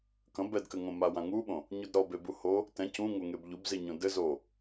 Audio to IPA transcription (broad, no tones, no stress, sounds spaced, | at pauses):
k ɐ̃ b ɛ d k ɘ ŋ õ m a w ã ŋ u ɓ õ | ɲ u d ɾ ɔ b e b u h o | t ɛ̃ c ũ ŋ o ŋ e b ʎ u b z i ɲ õ d ɘ z o